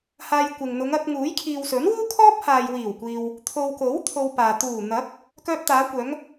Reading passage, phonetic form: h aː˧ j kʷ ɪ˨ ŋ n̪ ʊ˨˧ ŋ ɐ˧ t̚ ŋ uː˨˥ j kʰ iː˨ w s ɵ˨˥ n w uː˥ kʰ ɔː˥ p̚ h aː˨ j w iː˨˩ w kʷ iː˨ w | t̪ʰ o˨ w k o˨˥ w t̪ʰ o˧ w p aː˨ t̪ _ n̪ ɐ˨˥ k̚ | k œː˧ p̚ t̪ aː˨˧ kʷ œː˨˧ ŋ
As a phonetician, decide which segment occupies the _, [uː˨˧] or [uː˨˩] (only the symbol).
uː˨˩